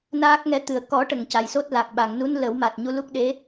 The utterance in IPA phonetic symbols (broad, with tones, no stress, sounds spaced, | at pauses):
n aː˦˥ k̚ ŋ ɛ˧˥ t̪ ɨ˨˩ ə̯ k ɔ˨˩˦ ʈ ə˨˩˨ ŋ c a˨˩ j s o˦˥ t̚ l a˨˩ k̚ ɓ a˨˩˨ ŋ n u˧˥ n l ə˨˩˦ w m a˨˩ t̚ ɲ u˧ l u˦˥ k̚ ɗ e˧˥